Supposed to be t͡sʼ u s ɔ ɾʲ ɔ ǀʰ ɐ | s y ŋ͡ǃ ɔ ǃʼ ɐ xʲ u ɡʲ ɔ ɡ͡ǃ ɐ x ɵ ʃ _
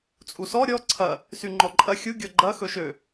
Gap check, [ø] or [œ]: ø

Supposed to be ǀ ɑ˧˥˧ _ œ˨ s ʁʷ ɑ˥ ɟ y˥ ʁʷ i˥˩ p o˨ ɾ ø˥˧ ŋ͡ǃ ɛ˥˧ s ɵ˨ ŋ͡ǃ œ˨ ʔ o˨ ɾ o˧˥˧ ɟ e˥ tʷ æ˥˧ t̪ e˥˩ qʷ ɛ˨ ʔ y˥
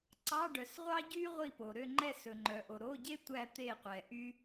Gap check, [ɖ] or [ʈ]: ɖ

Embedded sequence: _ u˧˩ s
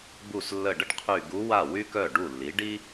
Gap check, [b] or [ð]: b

